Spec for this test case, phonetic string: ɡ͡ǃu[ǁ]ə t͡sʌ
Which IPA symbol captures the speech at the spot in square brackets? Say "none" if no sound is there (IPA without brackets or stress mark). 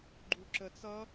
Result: ǁ